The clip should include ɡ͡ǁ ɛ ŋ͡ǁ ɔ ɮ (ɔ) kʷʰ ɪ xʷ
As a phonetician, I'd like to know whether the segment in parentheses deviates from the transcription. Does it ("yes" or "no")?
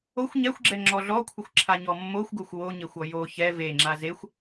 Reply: no